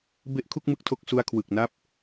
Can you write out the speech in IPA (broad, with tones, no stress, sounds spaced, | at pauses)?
b e˦˥ ʔ kʰ u˥˩ k̚ m ɯ˥˩ k̚ tʰ o˥˩ k̚ s u˧ a̯ kʰ w ɯ˨˩ k̚ n a˦˥ p̚